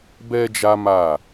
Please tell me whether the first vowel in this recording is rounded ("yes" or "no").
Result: no